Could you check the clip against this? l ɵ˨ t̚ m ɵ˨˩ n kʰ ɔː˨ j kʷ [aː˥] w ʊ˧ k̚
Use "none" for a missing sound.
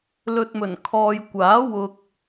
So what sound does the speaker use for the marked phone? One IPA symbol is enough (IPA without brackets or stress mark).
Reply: aː˨˥